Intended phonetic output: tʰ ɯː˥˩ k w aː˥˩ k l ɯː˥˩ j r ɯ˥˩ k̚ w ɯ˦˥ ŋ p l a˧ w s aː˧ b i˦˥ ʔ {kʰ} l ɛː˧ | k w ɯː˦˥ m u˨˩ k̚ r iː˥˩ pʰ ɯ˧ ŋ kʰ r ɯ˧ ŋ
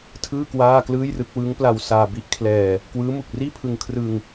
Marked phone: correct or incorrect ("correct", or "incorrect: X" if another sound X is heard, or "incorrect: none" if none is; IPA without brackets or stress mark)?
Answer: correct